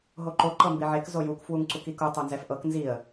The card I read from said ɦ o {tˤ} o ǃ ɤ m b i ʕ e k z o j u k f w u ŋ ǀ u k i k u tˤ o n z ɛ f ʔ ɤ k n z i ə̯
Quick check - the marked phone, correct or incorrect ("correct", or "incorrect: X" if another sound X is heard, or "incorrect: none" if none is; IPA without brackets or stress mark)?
incorrect: ǃ